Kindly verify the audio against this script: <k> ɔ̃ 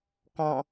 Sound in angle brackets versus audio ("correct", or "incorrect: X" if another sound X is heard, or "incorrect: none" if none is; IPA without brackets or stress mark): correct